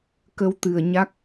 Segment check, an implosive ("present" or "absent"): absent